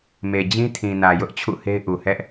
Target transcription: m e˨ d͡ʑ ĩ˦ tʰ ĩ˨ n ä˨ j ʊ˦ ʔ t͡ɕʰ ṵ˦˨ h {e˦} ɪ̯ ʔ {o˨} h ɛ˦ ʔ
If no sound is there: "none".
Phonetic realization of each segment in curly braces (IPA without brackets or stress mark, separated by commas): e˦, u˨